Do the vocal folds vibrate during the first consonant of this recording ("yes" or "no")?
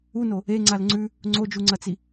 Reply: yes